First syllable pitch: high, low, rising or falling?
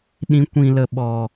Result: rising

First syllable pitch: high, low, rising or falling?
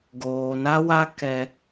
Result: low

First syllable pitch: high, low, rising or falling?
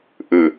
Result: falling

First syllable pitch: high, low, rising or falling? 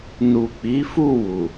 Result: low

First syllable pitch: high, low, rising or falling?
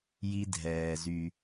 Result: high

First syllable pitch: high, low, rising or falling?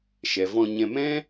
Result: low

